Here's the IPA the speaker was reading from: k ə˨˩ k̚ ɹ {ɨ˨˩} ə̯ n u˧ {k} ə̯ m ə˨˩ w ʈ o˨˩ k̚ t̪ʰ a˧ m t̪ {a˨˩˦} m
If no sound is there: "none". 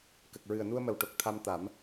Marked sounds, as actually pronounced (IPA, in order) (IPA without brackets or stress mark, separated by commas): ɨ˨˩, none, a˨˩˦